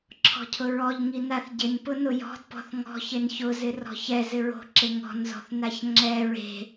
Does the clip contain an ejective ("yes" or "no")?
no